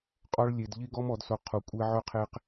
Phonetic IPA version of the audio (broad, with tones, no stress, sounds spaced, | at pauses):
qʼ ɔ˦ ɭ lʲ e˧ d ʎ i˦ ɡ ɔ˦ m ɔ˨˦ d s o˧ qʰ u˨ kʷʼ e˧ ʕ ɵ˧ qʰ e˧ q